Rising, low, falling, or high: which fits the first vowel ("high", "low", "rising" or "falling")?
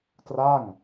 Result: falling